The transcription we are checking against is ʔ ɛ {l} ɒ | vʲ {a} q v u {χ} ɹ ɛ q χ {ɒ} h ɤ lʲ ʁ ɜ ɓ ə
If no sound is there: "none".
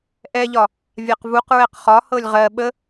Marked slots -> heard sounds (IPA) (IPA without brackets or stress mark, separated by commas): ʎ, a, q, ɒ